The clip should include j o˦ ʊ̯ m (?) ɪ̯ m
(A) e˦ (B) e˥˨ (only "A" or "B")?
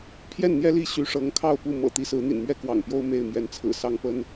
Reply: B